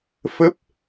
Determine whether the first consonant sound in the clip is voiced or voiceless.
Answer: voiceless